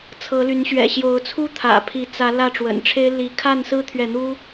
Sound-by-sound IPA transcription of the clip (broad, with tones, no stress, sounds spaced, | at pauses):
t͡sʰ ɤ˨˦ l y˨˦ n ɕ ɥ ɛ̰˨˩ ɕ j o˨˦ ʊ̯ t͡sʰ u˦ t̪ʰ ä̰˨˩ pʰ i˨˦ t͡s ä˨˦ l ä˥˨ ʈ͡ʂ w ə̰˨˩ n ʈ͡ʂʰ e˦ ɪ̯ l i˨˦ kʰ a˥˨ n s ɹ̩˦ t̪ʰ ɥ ɛ˨ n̪ u˦